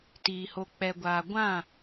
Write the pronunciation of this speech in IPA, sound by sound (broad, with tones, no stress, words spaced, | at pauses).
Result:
tiː˨ ho˨k͡pɛ˨ɡʷaː˨ ɡʷã˦˨